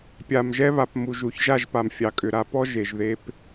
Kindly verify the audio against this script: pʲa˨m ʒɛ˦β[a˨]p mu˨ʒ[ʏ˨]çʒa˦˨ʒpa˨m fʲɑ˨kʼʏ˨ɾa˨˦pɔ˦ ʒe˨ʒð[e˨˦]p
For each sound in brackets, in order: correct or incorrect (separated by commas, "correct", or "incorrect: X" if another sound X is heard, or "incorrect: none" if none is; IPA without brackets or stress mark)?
correct, incorrect: u˨, incorrect: e˦